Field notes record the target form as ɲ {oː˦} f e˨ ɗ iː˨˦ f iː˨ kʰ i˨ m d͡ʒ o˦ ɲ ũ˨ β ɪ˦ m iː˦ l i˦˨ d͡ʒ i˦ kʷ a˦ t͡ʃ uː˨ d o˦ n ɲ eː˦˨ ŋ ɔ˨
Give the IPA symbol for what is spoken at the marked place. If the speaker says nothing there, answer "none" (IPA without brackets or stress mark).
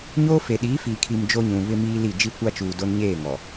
oː˦